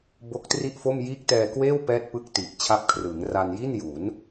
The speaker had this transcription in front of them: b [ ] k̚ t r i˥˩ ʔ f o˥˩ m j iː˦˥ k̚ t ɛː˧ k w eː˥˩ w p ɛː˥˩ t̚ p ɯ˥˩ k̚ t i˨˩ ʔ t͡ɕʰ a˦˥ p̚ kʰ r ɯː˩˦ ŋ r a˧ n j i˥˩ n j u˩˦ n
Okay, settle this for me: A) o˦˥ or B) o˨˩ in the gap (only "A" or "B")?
A